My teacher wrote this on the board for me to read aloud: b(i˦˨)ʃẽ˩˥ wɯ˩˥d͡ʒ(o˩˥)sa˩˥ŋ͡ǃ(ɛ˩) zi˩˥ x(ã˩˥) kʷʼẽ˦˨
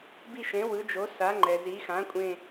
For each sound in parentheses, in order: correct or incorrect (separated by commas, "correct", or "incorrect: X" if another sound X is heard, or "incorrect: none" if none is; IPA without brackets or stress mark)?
correct, correct, correct, correct